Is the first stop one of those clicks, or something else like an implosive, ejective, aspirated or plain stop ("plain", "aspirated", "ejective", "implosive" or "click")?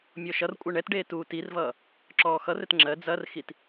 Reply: ejective